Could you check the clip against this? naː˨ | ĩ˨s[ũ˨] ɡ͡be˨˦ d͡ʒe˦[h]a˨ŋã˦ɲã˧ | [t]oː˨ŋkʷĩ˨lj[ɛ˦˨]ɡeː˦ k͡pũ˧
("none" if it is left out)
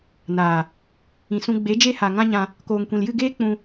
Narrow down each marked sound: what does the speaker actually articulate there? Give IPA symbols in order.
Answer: ũ˧, h, k, ɨ˦˨

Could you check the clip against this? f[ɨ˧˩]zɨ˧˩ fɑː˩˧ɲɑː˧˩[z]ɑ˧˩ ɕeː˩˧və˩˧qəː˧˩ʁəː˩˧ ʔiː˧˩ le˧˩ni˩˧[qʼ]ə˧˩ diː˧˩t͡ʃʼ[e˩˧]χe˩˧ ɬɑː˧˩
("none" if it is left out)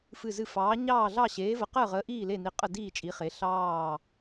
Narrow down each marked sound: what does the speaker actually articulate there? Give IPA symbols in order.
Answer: ɨ˧˩, ɮ, qʼ, i˩˧

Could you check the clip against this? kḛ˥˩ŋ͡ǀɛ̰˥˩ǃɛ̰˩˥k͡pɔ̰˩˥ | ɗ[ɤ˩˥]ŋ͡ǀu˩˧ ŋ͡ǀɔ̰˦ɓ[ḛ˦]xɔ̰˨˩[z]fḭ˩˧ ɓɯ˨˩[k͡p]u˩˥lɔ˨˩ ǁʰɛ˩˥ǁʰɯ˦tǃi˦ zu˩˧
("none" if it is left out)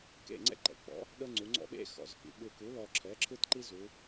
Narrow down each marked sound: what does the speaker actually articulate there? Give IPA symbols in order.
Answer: ɤ˦, ḛ˦, z, k

